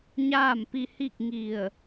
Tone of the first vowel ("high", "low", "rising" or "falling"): falling